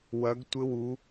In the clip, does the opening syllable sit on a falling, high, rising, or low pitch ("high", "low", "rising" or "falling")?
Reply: rising